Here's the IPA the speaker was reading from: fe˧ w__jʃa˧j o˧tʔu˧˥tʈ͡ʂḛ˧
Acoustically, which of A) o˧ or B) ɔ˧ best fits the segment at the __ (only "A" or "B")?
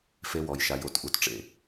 B